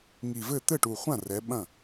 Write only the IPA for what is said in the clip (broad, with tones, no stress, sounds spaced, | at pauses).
ŋ i˨˩ v ɘ˥˩ t̪ ɘ˥˩ ʈ u˨˩ χʷ ã˥˩ r ɛ˩˧ ɓ ɐ̃˥˩